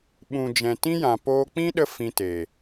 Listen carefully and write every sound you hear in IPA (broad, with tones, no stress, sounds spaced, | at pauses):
ɓ ũ˨ d͡ʒ ɛ̃˨ t ĩ˦ j ã˨ p oː˧ k͡p ĩ˦ ɗ ə˧ f ĩ˧ t eː˨